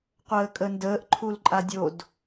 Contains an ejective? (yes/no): yes